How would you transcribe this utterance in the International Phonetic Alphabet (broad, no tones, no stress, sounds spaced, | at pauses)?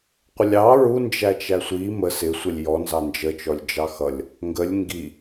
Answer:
qʷ ə lʲ ɑ ɹ u n d͡ʒ æ t͡ʃ æ sʷ i m ə s ɪ sʷ ɛ lʲ j ɔ n z ɑ n d͡ʒ ə t͡ʃ ɔ lʲ d͡ʒ ɑ x ʌ lʲ | ŋ ɡ ə lʲ ŋ ɡ i